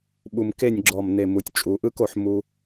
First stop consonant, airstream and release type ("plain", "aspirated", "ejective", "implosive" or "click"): implosive